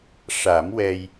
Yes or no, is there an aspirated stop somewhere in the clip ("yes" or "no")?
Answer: no